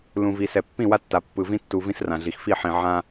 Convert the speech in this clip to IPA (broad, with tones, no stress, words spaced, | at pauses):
lũ˨vi˨sɛ˨ pːĩ˦˨wa˦tːa˨ pːɯ˨vĩ˦tːu˨ vĩ˦srã˨ɮi˨x fi˦˨ħĩ˨ ʕã˦